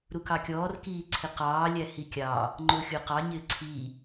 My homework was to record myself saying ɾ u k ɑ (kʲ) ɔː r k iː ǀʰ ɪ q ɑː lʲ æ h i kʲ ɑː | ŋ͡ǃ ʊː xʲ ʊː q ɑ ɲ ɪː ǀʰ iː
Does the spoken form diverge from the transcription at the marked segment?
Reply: no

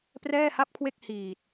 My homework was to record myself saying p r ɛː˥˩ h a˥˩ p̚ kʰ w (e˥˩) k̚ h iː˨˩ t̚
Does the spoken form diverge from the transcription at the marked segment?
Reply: no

